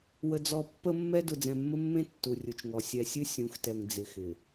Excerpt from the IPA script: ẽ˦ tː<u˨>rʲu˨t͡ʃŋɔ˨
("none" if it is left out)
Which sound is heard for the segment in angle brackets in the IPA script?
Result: u˨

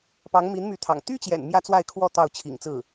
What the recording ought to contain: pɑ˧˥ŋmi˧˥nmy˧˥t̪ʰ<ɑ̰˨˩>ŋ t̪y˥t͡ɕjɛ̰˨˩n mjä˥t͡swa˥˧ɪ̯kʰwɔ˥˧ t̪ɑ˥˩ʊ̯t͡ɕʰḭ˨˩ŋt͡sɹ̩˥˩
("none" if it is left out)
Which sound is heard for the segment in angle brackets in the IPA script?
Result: ɑ̰˨˩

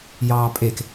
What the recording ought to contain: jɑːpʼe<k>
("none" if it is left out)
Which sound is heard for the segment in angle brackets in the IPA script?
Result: k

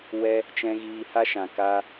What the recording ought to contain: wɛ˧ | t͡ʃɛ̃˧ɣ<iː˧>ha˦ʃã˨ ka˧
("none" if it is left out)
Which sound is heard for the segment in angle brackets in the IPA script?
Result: iː˧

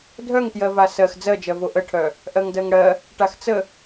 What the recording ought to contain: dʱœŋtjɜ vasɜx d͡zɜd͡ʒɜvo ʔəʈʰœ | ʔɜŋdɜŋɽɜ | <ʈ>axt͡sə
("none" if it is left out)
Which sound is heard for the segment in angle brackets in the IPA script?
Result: ʈ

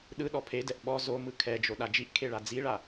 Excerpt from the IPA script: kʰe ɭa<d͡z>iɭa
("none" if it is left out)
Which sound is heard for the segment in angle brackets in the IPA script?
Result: d͡z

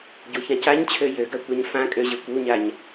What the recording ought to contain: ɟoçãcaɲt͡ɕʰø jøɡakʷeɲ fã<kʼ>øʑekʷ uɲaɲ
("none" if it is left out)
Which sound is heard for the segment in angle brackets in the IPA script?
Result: kʼ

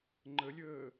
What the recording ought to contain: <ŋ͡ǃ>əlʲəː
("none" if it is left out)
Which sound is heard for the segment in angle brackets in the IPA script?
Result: ŋ͡ǃ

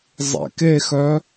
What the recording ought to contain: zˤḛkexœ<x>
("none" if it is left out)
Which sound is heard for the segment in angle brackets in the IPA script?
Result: none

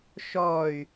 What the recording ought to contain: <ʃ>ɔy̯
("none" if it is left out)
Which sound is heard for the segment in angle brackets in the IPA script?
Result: ʃ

